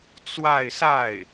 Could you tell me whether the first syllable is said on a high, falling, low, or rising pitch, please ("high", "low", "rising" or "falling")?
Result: falling